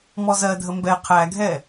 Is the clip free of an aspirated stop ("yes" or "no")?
no